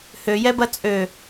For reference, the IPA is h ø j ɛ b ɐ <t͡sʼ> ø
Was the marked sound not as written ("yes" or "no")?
no